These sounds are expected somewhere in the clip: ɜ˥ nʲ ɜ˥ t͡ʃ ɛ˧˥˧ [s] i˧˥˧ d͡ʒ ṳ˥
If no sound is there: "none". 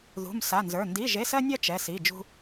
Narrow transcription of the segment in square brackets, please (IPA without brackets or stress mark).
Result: s